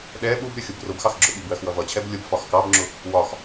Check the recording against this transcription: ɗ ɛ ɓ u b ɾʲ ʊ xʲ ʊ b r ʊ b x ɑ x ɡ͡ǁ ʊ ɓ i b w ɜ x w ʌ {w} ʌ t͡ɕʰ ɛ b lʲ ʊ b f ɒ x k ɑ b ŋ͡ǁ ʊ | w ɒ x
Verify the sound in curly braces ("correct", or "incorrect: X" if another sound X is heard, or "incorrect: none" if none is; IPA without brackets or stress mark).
incorrect: v